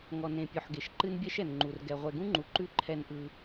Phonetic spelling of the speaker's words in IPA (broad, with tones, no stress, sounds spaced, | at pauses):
ŋ ɔ˨ n ẽ˨ pʲ ɔ˨ ħ ɡ e˨ ʃ ǃ ɨ˦ n bʲ ɛ˦ ʃ ɛ˨ n ŋ͡ǃ u˨ r ɡ ɛ˨ ʁʷ ɛ˨ ɡ ũ˦ ŋ͡ǃ u˨ ǃ ʉ˦ ǃʰ ɛ˧ n ʔ ɯ˧